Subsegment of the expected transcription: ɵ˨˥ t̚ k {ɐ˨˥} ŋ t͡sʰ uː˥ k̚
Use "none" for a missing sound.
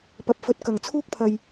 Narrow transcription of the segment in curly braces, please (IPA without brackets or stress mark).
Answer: ɐ˨˩